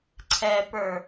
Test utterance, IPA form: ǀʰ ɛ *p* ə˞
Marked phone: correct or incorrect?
correct